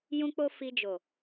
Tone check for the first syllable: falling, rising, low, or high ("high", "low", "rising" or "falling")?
high